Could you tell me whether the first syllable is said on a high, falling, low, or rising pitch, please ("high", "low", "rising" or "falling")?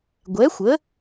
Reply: rising